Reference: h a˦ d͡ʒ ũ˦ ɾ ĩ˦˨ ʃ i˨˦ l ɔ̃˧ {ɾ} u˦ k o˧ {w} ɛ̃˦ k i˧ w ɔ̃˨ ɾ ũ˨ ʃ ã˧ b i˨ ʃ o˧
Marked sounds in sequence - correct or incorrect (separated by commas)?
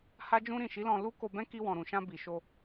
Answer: incorrect, incorrect